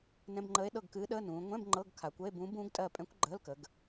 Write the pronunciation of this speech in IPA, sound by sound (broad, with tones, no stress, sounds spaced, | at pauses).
n ɛ̃˧˥˧ b ŋ͡ǃ əː˧˥ e̯ ɗ ɤ˦˨ ɡ k ɨː˧˥ ɗ əː˧˥˧ n ũː˩˧ ŋʷ ɛ̃˧˥˧ b ŋ͡ǃ ɤ˧˥˧ ɡ kʰ a˩˧ kʷ ə˧˥˧ e̯ b ũː˧˥ b ũː˧˥ ɡ tʼ ɜ˦˨ pʼ ɛ̃˧˥ kʷ ɡ͡ǃ əː˧˥˧ l k ə˩˧ ɡ